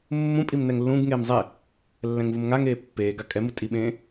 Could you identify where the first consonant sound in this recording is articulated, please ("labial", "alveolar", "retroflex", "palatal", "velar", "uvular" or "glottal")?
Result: labial